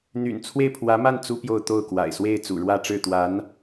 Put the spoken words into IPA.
n̪y̰˨˩nt͡sʰwe˥˩ɪ̯pʰwä˧˥ma˥˩n t͡su˥pjo˥˧ʊ̯t̪o˥˩ʊ̯ kwa̰˨˩ɪ̯swe˥˩ɪ̯ t͡sṵ˨˩ɻwä˥˧ʈ͡ʂɻ̩˥˩ t̪wa˧˥n

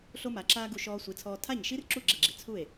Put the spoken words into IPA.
ɬo˥ma˩˥ǁaː˥ɡu˧ ʃɔː˧sʷi˩˥t͡sʰɔː˧ tʰa˥˩ɲʃi˥rǁu˥˩ ɡ͡ǁɛ˥˩ɡ͡ǁi˩ t͡sʰu˥˩e̯

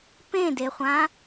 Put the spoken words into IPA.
pẽdeχʷã

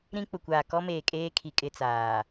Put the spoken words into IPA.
ɾĩ˦k͡pʊ˨kʷaː˨ kɔ˦meː˨kʼeː˦kʰi˨ kʼɪ˦t͡saː˨

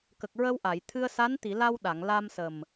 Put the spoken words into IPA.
kə˨˩k̚ɹə˧wʔa˨˩˨j t̪ʰɨ˧ə̯sa˧˥n t̪i˨˩˨ la˧wɗa˨˩˨ŋ la˧msə˨˩m

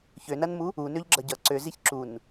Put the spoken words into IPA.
çønɐnmu | unøʎɡ͡ǁʌ ɟʌ ǀøziç ǁun

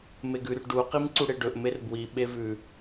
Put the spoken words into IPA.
meɡʉr ɖu qimǀuɽeɖɵʔ merbwi ɓevʉ

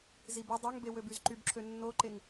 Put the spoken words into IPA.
zibi dˤoŋbewøbyz ǃybǁʰø nːoǃeŋ

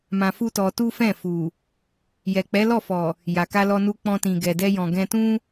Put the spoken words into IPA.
mã˧fu˦tɔ˧ tu˦fɛ̃˦˨ fu˨ | jɛ˨k͡pɛ˨˦lɔ˦˨fɔ˨ | ja˨ka˧lɔ˧nu˧ k͡pɔ̃˧tĩ˨ ɡɛ˨dɛ˧jɔ̃˨ ɡɛ̃˧tũ˦

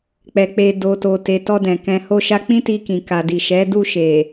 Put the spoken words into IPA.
k͡pɛ˨k͡pe˨ do˨to˨te˨ tɔ˧dɛ̃˨ kɛ̃˧ho˦ʃa˦ k͡pĩ˦ti˧kĩ˨ ka˨di˨ʃɛ˨˦ du˧ʃe˨

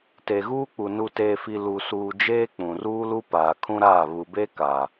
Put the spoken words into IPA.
te˨ɣuː˦k͡pu˨ nu˨teː˨fi˨ lu˨suː˨ d͡ʒeː˦k͡pũ˨ruː˦lu˦ paː˨kʰũ˦ɾaː˦˨ βu˨be˦ ka˨

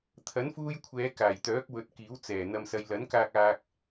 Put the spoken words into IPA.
t̪ʰɐ˨˥nfuː˧jkʷʰɛː˨˧ kaː˨˩jt̪œː˨˥k̚wɵ˨˥t̚ kiː˨˥wt͡sɛː˨˩ n̪ɐ˨msɐ˨jlɐ˨˥nkaː˧k̚ aː˧k̚

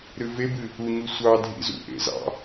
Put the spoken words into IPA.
ɾɨvebɨ | uɲu sʷɑ dʱḭzṵʔḛ zɑ̰

